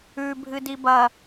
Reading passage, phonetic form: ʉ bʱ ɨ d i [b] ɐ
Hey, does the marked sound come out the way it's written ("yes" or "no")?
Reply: yes